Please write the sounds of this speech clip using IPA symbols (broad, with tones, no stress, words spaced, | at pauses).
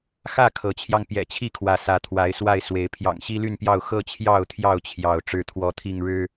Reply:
xä˥˨ kʰɤ˨˦t͡ɕʰjɑ˧ŋ pjɛ̰˨˩t͡ɕʰi˥˨kʰwä˨˦ sä˨˦t̪ʰwa˨˦ɪ̯swa˥˨ɪ̯ swe˨˦ɪ̯ pʰjɑ̰˨˩ŋɕi˦ly˥˨npjɑ˥˨ʊ̯ xɤ˥˨t͡ɕʰjɑ˥˨ʊ̯t̪ʰjɑ˥˨ʊ̯ t͡ɕʰjɑ˥˨ʊ̯ ʈ͡ʂɻ̩˥˨t̪ʰwɔ˥˨t̪ʰi˥˨ŋɻɻ̩˦